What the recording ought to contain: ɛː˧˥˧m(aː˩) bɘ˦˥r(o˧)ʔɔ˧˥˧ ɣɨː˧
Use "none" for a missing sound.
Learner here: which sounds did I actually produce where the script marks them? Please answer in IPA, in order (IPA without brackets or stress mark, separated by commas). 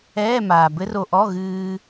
aː˩, o˧